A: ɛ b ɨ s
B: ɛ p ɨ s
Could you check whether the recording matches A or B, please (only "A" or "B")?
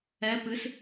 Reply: B